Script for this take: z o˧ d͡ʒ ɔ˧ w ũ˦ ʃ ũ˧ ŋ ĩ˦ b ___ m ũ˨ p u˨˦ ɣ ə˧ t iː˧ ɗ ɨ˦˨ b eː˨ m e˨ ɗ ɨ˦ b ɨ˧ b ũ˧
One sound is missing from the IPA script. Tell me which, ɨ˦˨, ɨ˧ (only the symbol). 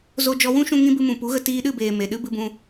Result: ɨ˧